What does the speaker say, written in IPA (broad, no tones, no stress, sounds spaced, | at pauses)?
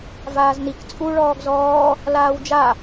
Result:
v aː z n i k t͡sʼ u ɭ ɔː ɡ z ɔː | l aː w d͡ʒ a